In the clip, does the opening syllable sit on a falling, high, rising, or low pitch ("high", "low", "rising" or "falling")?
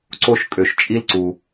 high